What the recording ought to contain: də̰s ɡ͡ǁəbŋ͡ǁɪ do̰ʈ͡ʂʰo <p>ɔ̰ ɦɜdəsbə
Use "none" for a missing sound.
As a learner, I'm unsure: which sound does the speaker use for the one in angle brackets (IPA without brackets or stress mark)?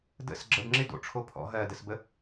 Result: pʰ